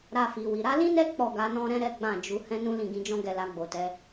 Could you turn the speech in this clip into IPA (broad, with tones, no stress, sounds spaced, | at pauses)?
ɾ a˧ f i˨ w i˨ ɾ a˨˦ l ĩ˦ n ɛ˦ k͡p ɔ˦˨ ɡ a˧ n ɔ̃˦ ɾ ɛ̃˦ ɾ ɛ˦ ɡ͡b ã˦˨ d͡ʒ u˧ h ɛ̃˦ n ũ˦ l ĩ˦˨ ɡ ĩ˧ d͡ʒ ɔ̃˦ ɡ ɛ˦˨ l a˧ ɡ͡b o˨ t ɛ˨˦